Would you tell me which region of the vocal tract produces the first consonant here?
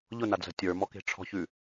palate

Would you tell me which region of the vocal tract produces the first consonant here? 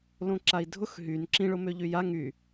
tongue tip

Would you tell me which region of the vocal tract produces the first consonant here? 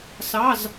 tongue tip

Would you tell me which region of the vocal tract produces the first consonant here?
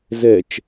tongue tip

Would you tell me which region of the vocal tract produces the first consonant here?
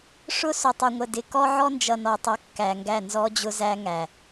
retroflex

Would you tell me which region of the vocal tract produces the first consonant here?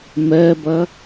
lips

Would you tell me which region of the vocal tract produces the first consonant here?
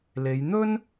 tongue tip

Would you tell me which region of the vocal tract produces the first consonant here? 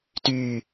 tongue tip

